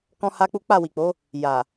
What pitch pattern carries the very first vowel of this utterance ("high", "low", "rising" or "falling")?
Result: high